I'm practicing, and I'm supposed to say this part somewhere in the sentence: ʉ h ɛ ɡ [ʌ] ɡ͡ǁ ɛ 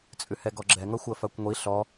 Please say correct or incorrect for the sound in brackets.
incorrect